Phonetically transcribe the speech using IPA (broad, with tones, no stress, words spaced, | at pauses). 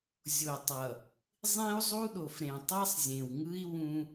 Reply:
zʲo˨tˤʌ˨ | zˤĩ˦u̯zˤu˦ɗo˨f ɾẽ˨tˤɛ˦sˤzʲẽ˨wŋɯ˦i̯ wũ˦